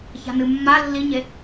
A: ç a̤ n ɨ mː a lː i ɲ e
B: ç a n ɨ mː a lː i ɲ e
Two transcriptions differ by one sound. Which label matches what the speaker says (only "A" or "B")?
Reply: A